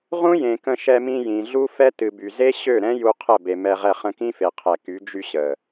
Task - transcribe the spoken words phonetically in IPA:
ʁũ˦ jẽ˨kə̃˧ ʃɛ˧mĩ˧ jĩ˨ɮu˦fɛ˦ tɨ˨by˨ze˦ ɕø˦˨ɾɛ̃˦ ju˧ qʰə˦˨be˨mɛ˧ ʁɛ˧χə̃˧kĩ˦fe˨ qʰɛ˨ky˨˦ d͡ʒy˧ ɕə˨

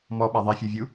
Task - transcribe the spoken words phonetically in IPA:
mɔɓa ðˤifʲovʲu

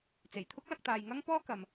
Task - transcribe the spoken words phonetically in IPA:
t͡se˨˩jt̪ʰʊ˥k̚lɐ˧k̚ t̪aː˨jŋɐ˥ŋpɔː˥ kɐ˨m

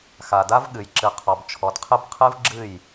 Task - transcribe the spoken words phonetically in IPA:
xa˨da˦vɠɨ˨j ǁɨ˨qʰɔ˨bt͡ʃʰɔ˨dqʰɨ˦b qʰɨ˦vɡ͡ǁɨ˦˨j

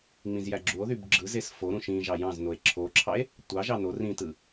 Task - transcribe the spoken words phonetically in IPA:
ŋ͡mĩzjæɡ͡ǁuo̯ðyb ɡ͡ǁɯzes foɾũ ʃĩ ʒɑjɑ̃znoe̯ ǁʰoǁʰɑe̯ | tʷɑʒɑ no rĩtɯ

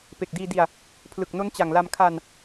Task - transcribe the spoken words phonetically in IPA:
pe˨˩k̚diː˧di˧a̯ | pʰlɯ˨˩k̚no˦˥nt͡ɕa˨˩ŋla˧m kʰa˧n

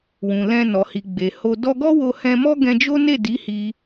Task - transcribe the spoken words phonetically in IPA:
wũ˨lɛ̃˧ nɔ˨hi˨ɡ͡be˨ho˧ dɔ˧ɡɔ˦ wo˧hɛ̃˧mɔ˦ ɡɛ̃˧d͡ʒo˦ne˦˨di˨˦ hi˧

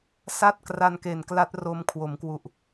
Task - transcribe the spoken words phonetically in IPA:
sa˥˩t̚kra˧nke˨˩nkla˦˥t̚ ro˦˥mkʰwo˩˦mkwu˨˩ʔ

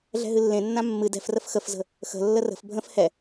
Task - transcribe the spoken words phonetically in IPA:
ɮɛ̤ɦɨlːẽnːã mːɨ dɛ̤frəf xəfzə̤ | xə̤lːə rə̤f bʱə̃f hɛ

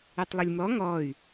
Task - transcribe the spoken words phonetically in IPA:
etˤlˠʏlʲmɔ ŋɔy̯

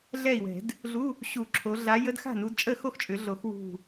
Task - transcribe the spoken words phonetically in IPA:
ɮɛ˥˩i̯wɛ̤˨˩˦d | ɮu˧˥˧ | ɕu˨˩˦ ǁʰo˨˦ ɮa˨˦jə˧˥˧d xa̤˥˩nu˨˦dt͡ʃʼə˥˩ xo˥˩xt͡ʃʼʏ˨˩˦ɮo˨˩˦x wṳ˧˩

